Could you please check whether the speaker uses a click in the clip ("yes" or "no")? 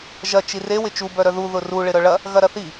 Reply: no